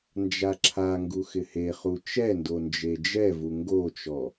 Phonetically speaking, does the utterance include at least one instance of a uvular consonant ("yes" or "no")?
yes